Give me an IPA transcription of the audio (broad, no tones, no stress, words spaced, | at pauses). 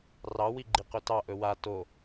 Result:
rɑ wiɡ͡ǃiqɵtɑ ʔɵwa to